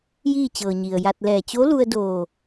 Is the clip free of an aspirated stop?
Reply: yes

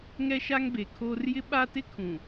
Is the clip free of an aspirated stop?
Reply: no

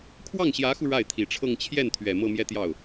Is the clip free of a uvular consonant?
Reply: yes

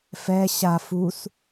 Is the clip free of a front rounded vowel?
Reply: yes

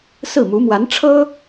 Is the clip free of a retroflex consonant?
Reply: no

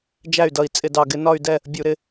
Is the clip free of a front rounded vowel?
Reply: no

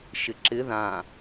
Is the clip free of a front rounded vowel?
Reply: yes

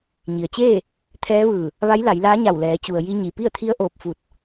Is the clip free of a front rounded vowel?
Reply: yes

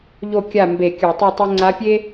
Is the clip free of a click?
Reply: no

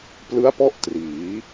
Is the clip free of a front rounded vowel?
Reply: yes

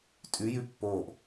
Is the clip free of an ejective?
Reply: no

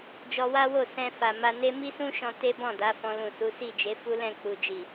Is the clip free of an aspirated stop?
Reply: yes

